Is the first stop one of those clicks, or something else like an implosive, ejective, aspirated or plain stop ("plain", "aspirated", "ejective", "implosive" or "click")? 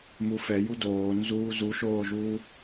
plain